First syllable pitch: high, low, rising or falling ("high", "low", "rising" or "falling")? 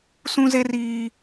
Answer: high